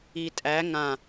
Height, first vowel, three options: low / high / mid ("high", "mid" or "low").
high